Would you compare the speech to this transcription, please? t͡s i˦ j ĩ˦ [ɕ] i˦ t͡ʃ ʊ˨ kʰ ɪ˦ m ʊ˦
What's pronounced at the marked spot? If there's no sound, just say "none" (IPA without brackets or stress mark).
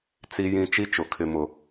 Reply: t͡ʃ